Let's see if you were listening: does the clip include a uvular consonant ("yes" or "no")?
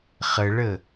yes